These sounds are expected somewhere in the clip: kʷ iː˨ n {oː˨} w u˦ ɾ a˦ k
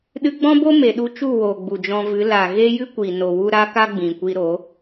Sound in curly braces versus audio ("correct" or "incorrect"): incorrect